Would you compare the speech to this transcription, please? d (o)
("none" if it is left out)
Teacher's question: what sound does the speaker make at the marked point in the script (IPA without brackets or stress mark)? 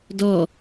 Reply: ɔ